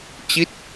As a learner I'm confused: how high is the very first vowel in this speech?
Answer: high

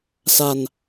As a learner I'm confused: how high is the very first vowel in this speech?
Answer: low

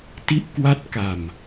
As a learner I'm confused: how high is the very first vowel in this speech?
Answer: high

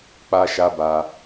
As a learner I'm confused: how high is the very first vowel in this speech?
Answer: low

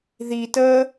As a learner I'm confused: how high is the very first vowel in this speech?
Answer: high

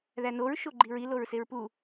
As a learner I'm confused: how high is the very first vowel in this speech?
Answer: low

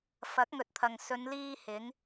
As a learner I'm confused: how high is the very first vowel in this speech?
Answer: low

